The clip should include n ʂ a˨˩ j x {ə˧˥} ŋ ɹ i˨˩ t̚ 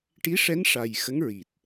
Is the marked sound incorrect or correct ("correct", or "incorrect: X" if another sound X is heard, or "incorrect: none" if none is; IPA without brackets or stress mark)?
correct